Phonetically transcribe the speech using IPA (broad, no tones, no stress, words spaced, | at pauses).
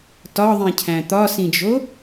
tɒðˤĩcʰæ̃ t̪ɒsĩd͡ʒo